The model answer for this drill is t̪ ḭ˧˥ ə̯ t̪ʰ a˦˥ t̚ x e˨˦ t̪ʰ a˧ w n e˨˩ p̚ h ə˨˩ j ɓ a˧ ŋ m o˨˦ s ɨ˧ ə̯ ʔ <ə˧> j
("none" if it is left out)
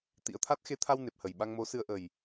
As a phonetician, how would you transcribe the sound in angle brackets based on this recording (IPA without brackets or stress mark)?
ə˨˩